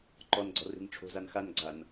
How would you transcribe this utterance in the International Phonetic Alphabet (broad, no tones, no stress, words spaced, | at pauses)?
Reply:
ǃɔnɡ͡ǀɔ̤ri̤n ʈ͡ʂʰo̤zan xanɡ͡ǀan